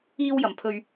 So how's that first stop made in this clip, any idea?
aspirated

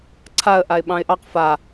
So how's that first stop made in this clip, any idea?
click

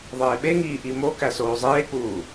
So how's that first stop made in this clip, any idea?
implosive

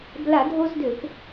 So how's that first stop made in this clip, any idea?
plain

